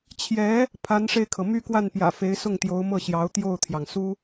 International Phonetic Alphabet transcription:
t͡ɕʰjɛ˧˥ | pʰa˧˥nʂe˧ɪ̯kʰɤ˩ my˥˧kwa˥˩npjä̰˨˩fe˧˥ɪ̯ sʊ˥˩ŋt̪jo˧˥ʊ̯mɤ˥˩ɕjɑ˧˥ʊ̯ t̪jo˥˩ʊ̯t̪ʰjɑ˩ŋ su˥

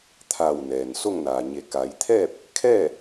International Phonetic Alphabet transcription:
t̪ʰa˧˩w nɛː˩nso˥˨ŋnaː˩ ɲe˩˧ka˩˧jt̪ʰɛː˥˨p̚ | kʰɛː˥˨

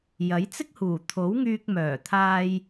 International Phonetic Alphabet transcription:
jɐ˨˥jt͡sɪ˥k̚huː˨˩ t̪ʰo˨˥w ŋyː˧k̚mœː˨˩t̪ʰaː˧j

